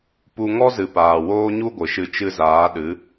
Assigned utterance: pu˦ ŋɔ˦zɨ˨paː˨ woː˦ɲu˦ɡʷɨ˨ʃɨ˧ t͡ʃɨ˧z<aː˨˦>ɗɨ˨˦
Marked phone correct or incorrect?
correct